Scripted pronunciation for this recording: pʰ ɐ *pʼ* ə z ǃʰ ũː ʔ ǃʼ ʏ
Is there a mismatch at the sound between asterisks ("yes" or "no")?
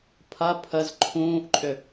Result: yes